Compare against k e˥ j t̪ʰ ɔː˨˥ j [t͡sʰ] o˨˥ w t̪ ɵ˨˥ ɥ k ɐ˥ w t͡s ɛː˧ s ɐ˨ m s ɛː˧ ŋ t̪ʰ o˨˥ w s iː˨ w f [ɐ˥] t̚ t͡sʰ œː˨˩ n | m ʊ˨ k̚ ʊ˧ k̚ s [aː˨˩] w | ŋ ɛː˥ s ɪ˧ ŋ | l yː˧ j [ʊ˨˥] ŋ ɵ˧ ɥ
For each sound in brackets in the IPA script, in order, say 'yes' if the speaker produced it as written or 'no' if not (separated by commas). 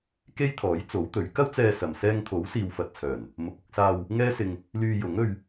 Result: no, no, no, yes